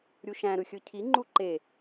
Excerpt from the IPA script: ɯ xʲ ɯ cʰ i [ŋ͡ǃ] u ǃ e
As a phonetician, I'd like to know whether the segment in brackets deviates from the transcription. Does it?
no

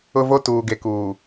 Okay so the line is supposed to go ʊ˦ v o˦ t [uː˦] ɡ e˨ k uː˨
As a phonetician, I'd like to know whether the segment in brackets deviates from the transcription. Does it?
yes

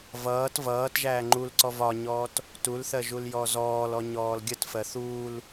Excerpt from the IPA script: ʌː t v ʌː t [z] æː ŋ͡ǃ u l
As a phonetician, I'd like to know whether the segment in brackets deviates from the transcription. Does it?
yes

